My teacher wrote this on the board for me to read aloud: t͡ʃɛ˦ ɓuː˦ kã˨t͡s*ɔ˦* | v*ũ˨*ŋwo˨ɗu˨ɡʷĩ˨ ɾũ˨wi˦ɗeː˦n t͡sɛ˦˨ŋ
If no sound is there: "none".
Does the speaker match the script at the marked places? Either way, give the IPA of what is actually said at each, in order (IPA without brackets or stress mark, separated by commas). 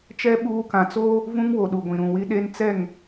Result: o˦, ũ˦